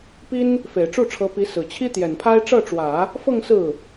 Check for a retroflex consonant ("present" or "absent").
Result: present